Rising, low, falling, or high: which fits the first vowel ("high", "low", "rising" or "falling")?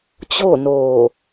falling